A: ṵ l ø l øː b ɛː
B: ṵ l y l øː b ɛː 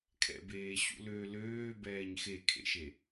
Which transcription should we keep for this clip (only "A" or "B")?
A